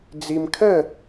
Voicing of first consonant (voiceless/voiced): voiced